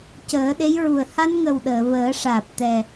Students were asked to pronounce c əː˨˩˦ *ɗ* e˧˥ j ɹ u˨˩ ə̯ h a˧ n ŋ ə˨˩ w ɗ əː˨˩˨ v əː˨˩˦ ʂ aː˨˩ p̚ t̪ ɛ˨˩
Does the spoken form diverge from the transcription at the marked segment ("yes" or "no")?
no